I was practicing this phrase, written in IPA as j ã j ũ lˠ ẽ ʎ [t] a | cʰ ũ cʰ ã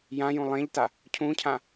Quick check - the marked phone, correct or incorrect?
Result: correct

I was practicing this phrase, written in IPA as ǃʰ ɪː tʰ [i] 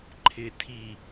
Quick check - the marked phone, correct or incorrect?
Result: correct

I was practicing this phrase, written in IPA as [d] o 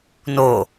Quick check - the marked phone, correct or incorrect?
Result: incorrect: n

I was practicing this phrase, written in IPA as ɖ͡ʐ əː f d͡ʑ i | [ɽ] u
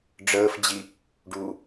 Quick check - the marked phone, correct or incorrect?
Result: incorrect: ɖ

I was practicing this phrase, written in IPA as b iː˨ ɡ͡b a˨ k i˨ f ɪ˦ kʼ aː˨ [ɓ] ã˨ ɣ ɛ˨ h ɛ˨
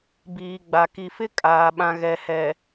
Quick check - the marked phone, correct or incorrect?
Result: correct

